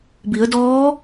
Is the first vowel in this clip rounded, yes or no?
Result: no